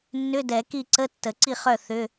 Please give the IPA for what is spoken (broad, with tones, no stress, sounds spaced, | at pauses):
nː ʏ˧˥˧ d ɛ˨˩˦ k i˥˩ ǀ ə˧˥˧ tː ə˨˩˦ ǀ i˥˩ χ œ˥˩ θ ʏ˧˥˧